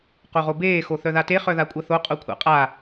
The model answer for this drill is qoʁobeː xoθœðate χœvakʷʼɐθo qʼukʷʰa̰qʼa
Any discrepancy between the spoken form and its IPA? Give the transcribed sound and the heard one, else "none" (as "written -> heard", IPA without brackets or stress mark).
v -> ð